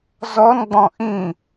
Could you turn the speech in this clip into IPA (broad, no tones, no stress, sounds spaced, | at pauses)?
z ɔ n ɡ͡b ɔ̃ ʔ ĩ